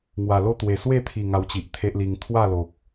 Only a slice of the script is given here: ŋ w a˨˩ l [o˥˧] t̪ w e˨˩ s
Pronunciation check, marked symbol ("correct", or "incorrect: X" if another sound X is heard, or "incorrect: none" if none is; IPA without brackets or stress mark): correct